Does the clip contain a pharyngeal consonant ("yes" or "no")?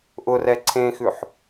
yes